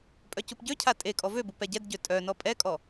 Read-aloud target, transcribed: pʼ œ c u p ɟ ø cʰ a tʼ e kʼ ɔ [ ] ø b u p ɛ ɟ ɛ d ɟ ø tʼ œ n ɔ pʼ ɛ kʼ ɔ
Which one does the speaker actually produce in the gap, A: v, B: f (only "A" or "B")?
A